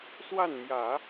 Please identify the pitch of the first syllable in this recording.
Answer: falling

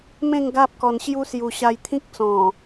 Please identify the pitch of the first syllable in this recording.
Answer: falling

